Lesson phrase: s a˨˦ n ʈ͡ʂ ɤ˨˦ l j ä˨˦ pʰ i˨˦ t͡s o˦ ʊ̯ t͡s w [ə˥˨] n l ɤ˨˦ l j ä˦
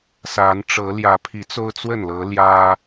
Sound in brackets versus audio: correct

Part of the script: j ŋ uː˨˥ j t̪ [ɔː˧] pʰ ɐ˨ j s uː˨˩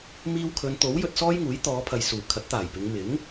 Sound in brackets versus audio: incorrect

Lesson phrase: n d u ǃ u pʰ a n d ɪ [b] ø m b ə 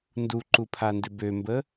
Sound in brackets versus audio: correct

